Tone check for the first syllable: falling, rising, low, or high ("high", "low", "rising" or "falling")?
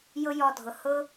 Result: high